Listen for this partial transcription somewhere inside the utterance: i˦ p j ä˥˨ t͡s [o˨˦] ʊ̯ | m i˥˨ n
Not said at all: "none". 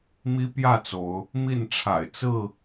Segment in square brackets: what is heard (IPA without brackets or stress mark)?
o˨˦